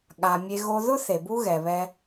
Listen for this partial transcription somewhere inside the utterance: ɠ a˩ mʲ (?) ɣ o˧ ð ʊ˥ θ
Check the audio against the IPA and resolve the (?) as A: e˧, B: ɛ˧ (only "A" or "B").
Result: A